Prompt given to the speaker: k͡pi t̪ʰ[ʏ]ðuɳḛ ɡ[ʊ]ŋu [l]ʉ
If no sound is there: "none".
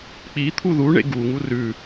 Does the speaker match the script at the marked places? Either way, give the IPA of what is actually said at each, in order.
u, u, r

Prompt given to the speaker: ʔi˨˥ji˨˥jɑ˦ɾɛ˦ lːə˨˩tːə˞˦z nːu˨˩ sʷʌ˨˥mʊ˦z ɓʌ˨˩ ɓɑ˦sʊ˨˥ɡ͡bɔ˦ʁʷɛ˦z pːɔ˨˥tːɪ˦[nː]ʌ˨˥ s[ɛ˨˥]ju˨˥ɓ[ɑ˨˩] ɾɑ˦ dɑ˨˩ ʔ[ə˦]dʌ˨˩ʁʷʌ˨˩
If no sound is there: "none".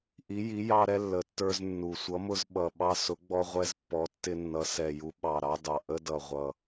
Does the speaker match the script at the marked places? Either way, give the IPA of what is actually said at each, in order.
nː, ɛ˨˩, ɑ˨˩, ə˦

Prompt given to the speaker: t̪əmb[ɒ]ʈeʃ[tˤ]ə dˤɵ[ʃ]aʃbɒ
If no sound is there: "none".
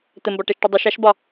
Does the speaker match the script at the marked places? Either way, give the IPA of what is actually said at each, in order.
ɒ, ʈ, ʃ

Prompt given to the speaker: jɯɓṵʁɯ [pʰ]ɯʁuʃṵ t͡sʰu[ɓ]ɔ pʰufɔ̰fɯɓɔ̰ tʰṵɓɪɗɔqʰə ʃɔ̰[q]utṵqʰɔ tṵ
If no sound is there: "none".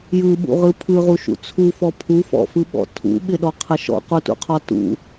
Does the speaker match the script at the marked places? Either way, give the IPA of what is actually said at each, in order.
pʰ, f, q

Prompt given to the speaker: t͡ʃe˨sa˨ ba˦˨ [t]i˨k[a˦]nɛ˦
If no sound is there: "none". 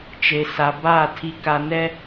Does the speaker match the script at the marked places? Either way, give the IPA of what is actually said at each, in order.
tʰ, a˨

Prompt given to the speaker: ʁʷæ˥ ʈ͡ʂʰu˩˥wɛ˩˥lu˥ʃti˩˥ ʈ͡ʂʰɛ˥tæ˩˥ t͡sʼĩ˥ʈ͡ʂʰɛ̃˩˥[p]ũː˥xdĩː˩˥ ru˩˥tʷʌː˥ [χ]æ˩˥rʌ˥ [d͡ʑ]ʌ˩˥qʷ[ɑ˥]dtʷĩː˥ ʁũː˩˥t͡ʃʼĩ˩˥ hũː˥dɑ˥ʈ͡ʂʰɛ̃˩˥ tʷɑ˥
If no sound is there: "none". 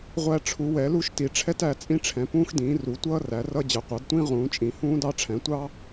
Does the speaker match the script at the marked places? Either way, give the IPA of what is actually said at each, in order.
p, r, d͡ʑ, ɑ˩˥

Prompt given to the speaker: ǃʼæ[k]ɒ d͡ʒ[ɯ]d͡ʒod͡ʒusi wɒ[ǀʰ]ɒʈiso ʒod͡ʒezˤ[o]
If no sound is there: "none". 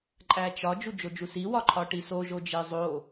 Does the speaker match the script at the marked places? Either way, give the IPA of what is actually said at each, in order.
t͡ʃ, u, ǃʰ, o

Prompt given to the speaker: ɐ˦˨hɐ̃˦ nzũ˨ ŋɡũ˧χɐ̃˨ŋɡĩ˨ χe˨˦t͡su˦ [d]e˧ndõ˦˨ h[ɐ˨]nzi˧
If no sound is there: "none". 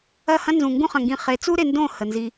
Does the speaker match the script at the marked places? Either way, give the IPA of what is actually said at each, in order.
ɾ, ə˨

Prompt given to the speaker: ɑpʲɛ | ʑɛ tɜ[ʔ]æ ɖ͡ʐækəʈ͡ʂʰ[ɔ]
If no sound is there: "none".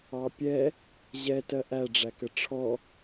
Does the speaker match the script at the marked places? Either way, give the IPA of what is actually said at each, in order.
ʔ, ɔ

